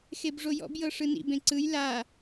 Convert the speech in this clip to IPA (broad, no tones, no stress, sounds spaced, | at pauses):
x e b ʐ o j ɔ̰ b j ɤ ʂ ɯ n ḭ b ẽ ǀ ɯ j l a